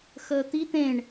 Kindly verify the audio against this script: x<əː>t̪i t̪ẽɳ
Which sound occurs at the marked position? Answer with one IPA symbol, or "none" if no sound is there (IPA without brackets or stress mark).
əː